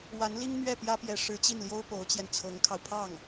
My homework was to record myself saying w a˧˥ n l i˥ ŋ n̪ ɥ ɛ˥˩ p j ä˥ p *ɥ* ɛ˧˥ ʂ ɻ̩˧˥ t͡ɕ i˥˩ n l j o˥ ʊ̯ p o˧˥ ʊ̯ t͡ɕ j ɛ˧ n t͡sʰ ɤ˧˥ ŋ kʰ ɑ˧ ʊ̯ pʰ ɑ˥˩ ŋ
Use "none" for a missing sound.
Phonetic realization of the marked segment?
j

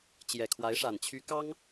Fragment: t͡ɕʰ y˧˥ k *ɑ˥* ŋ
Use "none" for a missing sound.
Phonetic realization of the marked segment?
ɑ˥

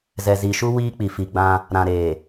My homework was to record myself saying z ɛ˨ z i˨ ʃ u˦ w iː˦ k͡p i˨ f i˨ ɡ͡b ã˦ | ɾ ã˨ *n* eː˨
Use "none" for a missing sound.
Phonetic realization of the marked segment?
ɾ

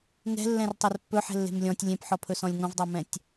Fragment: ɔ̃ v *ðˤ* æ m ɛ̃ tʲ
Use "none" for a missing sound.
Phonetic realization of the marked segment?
dˤ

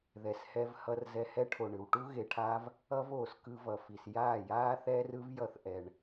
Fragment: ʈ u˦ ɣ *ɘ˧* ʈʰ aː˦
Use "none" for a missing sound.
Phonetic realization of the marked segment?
e˧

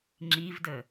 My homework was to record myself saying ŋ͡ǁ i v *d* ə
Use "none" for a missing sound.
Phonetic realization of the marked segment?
d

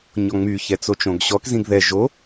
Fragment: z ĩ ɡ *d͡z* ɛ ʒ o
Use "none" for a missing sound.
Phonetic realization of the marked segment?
ð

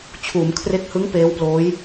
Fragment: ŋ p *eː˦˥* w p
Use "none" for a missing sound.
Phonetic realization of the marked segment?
eː˦˥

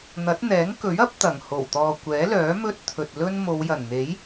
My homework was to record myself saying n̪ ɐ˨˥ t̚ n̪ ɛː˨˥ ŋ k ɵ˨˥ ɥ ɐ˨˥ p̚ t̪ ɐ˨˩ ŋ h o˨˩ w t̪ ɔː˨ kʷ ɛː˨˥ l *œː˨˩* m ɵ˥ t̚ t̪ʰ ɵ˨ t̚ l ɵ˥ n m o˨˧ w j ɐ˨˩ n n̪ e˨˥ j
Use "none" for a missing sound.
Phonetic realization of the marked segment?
œː˨˥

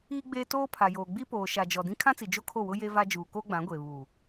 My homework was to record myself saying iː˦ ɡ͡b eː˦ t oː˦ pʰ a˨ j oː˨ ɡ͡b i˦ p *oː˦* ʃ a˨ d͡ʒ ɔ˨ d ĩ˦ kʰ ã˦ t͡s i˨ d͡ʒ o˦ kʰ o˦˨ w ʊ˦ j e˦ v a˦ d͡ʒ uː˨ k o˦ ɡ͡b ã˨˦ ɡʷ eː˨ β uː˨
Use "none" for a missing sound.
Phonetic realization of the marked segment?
oː˨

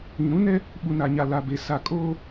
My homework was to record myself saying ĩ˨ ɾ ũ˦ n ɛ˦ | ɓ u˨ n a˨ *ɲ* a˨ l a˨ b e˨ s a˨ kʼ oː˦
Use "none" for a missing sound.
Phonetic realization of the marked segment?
ɲ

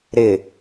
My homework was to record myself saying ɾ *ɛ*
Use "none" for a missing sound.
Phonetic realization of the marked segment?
ɪ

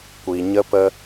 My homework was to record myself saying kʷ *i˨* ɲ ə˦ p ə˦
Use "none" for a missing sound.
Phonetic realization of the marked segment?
i˨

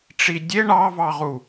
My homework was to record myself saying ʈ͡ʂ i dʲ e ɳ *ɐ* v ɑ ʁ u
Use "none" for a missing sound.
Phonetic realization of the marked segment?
ɑ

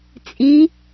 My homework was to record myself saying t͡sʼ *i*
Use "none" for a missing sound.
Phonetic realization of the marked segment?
i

